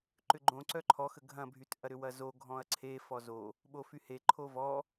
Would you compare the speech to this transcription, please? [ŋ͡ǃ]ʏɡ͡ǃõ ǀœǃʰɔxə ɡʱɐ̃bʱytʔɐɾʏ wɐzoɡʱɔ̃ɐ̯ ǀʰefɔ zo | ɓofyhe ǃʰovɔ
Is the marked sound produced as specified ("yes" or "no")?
no